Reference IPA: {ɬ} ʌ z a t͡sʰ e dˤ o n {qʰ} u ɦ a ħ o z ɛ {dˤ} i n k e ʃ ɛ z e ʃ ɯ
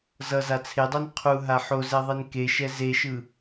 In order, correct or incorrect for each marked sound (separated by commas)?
incorrect, correct, incorrect